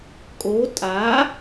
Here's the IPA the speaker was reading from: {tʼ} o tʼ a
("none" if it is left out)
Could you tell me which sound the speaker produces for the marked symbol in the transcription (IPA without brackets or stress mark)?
kʼ